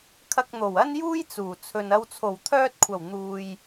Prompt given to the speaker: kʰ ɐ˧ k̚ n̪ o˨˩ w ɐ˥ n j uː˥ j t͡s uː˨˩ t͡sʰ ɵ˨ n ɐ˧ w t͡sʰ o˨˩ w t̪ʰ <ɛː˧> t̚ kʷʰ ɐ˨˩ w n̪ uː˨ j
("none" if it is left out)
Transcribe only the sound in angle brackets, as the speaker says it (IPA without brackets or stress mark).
œː˧